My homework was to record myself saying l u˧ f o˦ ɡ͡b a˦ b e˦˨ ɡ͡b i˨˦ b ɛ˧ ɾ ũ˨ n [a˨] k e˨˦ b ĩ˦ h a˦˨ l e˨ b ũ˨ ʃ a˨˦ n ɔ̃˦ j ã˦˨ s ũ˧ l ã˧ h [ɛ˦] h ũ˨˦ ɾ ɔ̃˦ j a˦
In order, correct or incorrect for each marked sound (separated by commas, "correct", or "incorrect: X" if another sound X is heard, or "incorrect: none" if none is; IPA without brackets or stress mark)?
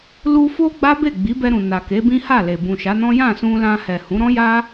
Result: correct, incorrect: ɛ˨